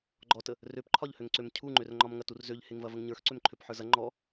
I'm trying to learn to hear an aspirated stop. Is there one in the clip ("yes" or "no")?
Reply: yes